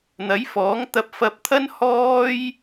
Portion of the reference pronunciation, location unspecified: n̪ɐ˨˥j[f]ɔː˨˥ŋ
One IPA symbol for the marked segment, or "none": f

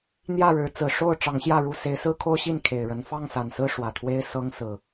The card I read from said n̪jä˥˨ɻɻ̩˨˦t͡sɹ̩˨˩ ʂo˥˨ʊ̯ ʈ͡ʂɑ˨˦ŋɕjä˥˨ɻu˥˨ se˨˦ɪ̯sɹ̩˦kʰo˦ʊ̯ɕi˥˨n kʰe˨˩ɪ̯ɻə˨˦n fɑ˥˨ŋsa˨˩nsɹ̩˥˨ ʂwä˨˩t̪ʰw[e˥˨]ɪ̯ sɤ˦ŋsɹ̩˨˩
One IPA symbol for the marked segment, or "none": e˦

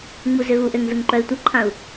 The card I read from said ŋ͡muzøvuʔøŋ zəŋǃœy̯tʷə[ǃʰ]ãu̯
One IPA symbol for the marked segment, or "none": ǃʰ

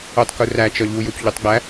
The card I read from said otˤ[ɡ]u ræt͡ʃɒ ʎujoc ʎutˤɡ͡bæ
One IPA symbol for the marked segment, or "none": k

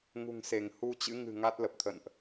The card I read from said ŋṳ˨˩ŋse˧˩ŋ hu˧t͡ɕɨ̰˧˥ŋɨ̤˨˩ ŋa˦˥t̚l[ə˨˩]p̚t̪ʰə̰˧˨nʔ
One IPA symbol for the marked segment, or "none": ə˨˩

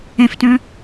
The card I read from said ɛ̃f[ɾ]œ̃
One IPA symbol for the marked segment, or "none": t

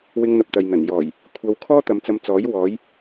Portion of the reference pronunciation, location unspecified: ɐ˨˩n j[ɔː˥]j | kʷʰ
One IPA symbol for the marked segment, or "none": ɔː˨˩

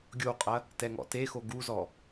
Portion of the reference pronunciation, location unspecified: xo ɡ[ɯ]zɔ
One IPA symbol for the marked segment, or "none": u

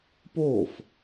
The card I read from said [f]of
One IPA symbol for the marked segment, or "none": p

